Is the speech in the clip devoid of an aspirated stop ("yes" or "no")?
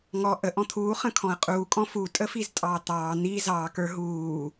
no